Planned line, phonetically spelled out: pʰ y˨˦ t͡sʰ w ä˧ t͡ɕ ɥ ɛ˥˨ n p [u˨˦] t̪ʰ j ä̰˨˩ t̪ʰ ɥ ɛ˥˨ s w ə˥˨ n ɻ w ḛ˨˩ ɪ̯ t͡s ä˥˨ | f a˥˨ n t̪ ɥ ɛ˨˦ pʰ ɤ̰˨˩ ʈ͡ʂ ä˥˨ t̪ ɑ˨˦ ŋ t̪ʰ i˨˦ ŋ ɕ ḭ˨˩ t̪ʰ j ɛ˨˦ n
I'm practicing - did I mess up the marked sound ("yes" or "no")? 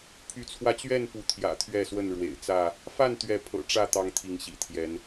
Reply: no